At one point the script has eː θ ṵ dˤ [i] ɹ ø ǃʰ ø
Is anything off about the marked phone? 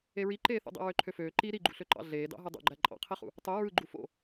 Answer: yes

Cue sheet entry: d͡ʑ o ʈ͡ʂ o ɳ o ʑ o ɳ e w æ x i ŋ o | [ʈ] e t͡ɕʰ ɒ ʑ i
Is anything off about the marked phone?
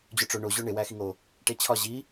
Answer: no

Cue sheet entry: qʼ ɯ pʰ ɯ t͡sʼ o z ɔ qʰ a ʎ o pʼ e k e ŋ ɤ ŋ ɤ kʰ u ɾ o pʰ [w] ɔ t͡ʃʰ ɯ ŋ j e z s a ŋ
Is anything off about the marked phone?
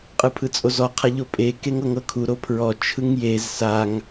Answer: yes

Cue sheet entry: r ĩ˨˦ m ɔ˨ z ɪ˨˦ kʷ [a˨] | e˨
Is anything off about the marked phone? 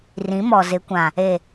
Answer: yes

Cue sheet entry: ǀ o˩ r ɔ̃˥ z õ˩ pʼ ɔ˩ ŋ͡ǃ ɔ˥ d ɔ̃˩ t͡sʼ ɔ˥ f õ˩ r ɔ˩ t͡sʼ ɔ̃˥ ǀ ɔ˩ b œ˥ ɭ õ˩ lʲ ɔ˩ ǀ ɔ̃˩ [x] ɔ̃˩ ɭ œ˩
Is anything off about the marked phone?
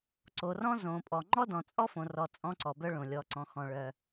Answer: no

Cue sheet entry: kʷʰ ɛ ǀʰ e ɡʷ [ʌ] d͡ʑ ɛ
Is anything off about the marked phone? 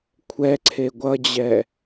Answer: no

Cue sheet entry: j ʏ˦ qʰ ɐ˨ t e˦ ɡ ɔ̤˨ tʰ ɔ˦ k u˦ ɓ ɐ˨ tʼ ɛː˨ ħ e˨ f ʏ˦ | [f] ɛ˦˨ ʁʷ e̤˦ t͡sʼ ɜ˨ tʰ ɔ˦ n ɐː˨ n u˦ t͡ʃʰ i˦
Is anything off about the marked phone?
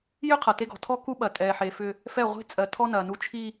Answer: no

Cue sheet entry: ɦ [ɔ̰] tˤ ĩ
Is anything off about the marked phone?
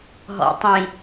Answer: no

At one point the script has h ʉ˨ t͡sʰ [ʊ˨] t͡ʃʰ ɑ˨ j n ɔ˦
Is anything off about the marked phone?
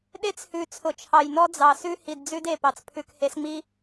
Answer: no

